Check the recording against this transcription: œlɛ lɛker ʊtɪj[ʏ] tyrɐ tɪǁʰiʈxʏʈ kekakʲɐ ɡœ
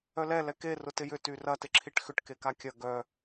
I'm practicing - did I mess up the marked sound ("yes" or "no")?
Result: no